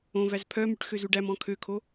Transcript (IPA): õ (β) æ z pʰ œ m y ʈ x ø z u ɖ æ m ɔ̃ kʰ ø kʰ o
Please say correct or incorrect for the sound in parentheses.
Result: incorrect